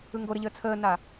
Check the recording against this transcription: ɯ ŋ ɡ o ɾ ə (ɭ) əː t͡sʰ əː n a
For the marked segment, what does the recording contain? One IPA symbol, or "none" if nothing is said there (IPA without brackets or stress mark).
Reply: ʎ